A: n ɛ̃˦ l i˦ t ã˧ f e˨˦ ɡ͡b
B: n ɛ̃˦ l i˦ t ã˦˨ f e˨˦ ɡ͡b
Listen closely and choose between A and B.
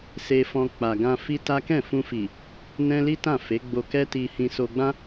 B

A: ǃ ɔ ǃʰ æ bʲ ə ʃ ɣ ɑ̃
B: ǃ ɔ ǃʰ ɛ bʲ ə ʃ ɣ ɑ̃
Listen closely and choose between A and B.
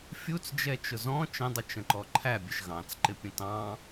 A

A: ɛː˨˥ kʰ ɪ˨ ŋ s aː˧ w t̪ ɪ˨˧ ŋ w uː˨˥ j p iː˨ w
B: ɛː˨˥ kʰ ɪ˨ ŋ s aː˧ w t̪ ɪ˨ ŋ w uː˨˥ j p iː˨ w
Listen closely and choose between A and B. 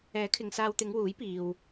A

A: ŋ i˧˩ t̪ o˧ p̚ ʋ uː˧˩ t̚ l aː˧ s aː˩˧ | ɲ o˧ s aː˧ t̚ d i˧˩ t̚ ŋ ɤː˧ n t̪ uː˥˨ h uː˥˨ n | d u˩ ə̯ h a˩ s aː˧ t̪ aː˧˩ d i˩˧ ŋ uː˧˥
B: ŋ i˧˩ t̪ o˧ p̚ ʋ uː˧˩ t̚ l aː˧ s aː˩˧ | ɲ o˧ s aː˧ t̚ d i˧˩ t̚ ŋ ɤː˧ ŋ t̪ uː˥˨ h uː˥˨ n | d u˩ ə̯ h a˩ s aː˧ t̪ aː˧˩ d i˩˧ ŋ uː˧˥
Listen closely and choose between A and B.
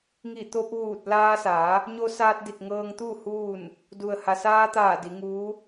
B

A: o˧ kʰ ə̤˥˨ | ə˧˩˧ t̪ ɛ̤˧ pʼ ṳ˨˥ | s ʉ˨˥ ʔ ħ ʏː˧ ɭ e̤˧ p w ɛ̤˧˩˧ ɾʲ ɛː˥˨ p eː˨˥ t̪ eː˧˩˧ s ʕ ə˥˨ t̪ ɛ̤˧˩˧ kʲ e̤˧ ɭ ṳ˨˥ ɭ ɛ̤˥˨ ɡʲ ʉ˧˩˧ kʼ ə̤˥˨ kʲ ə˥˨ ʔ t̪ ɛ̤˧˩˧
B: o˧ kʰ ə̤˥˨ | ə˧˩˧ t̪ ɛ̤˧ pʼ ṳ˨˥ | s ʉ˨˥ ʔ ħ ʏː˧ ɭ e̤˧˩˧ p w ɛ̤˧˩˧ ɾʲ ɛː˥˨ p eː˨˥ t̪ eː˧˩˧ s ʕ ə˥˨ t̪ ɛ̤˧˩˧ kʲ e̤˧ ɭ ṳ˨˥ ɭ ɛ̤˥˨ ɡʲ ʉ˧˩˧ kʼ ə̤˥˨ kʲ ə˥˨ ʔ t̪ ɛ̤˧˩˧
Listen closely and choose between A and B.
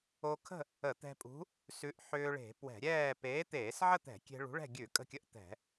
B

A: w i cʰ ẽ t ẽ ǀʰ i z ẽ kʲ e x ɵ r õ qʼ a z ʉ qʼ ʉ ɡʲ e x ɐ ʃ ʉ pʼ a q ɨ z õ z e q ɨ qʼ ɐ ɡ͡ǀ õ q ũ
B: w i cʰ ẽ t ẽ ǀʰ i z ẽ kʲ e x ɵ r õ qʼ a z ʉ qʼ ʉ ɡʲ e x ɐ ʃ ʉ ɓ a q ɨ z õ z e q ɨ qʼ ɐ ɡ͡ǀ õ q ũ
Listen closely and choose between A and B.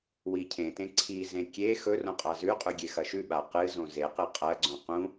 B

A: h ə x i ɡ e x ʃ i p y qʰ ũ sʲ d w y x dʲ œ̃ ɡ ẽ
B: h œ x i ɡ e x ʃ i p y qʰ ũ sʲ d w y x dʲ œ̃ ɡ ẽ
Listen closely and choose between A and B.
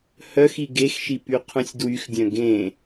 B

